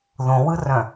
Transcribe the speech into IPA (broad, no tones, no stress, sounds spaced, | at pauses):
ð õ w ɯ r œ̃